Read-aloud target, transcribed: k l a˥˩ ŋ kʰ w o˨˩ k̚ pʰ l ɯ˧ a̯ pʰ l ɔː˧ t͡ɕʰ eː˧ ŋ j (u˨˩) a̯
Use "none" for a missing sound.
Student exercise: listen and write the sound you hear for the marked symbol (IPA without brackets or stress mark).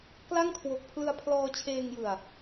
ɯ˨˩